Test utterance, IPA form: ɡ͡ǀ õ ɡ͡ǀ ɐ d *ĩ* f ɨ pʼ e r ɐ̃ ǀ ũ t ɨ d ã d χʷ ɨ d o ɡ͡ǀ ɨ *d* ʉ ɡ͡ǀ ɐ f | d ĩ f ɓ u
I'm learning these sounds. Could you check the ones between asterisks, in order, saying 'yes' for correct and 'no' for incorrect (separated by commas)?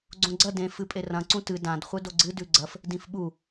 no, yes